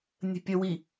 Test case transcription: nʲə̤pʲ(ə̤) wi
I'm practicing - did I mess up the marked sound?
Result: yes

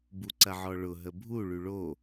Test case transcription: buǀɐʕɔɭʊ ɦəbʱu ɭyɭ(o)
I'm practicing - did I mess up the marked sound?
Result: no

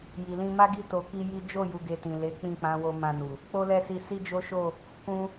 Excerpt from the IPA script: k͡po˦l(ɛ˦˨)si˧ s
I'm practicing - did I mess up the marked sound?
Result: no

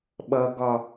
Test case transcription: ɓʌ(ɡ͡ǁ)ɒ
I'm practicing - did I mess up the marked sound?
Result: yes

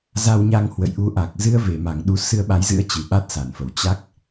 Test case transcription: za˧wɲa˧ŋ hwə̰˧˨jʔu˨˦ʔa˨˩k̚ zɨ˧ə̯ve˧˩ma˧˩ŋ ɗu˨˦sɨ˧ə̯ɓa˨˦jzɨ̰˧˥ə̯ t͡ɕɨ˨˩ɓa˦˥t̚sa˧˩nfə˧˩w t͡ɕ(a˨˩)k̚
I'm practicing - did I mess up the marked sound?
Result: yes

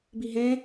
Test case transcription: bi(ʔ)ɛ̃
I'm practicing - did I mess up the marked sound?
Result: yes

